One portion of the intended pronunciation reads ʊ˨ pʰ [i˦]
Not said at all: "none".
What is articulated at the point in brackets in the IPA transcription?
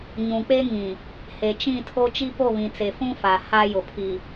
i˨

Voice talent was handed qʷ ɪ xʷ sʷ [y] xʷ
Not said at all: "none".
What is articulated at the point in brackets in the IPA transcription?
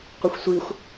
i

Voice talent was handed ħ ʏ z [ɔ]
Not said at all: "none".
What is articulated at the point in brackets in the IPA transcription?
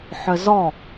ɔ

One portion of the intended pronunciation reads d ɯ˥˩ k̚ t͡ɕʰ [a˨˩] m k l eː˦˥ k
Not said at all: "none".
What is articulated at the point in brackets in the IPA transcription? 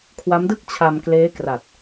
a˧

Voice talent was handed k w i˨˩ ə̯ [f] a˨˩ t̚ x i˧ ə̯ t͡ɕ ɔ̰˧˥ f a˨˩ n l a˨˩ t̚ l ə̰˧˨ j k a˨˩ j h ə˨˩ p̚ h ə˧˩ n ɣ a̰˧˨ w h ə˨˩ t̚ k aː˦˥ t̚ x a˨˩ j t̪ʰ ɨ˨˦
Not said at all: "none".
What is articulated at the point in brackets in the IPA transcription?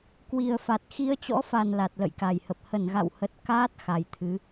f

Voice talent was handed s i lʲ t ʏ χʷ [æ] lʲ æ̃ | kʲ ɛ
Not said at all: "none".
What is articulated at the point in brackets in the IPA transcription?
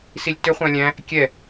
æ̃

